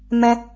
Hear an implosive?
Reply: no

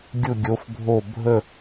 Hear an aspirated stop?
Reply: no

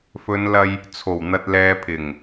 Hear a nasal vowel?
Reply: no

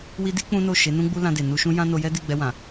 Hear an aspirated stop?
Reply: no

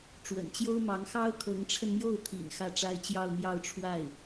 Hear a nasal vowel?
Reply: no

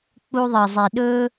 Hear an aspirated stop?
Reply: no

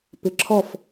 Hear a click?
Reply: yes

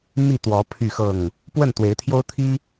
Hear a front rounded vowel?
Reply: yes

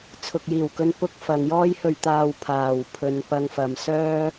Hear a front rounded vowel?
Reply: yes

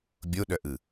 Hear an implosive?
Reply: yes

